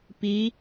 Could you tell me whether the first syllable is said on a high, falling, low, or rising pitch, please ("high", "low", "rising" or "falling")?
rising